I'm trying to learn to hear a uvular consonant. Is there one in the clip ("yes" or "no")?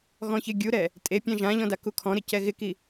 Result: no